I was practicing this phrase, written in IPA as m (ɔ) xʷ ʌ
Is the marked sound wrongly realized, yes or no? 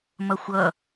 yes